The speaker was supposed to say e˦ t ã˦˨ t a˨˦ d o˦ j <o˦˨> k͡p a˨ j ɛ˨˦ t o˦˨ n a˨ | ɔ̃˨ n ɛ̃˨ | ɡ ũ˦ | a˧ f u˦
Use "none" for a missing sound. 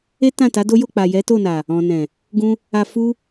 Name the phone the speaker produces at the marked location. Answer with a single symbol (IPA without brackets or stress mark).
o˦˨